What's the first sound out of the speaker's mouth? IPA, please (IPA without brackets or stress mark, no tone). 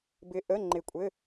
b